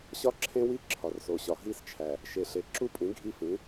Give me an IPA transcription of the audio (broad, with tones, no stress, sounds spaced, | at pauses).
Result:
ɕ ɒ˦ ǁʰ ẽ˦ w i˦˨ ǁʰ ɒ˨ r s o˨ ɕ ɒ˨ ɦ i˦ s t͡ʃʰ æ˨ | ʃ e˨ ɬ e˨ ǁ u˦ pʼ ĩ˨˦ ɡʱ i˦ f ĩ˨˦